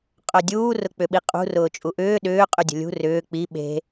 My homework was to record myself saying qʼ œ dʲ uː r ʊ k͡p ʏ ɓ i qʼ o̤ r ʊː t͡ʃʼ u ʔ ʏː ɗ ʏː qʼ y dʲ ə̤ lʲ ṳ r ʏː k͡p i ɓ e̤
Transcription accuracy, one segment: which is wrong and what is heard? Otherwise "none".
o̤ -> ṳ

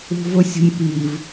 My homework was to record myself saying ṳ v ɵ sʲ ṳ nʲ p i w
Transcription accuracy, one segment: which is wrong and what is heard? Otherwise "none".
w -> v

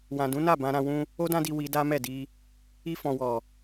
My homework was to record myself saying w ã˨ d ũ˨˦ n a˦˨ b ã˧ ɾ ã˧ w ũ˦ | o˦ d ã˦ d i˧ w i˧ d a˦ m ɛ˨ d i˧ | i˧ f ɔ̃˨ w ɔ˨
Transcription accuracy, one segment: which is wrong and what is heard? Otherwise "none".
ɛ˨ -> ɛ˦˨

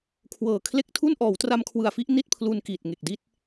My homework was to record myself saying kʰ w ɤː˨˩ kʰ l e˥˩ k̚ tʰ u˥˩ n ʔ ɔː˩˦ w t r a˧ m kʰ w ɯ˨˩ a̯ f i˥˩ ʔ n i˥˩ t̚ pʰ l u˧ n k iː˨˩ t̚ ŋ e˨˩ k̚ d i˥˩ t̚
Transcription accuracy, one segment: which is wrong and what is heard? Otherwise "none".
none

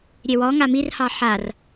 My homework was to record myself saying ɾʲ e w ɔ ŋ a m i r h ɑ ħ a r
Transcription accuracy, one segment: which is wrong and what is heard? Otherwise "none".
none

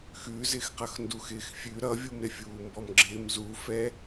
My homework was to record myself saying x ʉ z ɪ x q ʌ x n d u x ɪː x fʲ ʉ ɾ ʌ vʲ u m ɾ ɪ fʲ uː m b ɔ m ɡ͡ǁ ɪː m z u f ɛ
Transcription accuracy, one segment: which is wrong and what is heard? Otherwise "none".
none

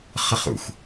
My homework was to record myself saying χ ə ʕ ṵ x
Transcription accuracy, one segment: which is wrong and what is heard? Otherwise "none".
ʕ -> χ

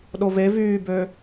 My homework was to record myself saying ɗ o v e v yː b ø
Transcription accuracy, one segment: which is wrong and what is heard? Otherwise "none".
none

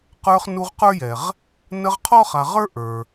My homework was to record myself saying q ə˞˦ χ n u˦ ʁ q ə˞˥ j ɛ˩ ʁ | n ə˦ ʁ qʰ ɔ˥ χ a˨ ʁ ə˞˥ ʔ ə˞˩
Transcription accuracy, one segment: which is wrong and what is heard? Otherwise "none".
none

